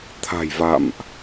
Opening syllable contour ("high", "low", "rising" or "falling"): low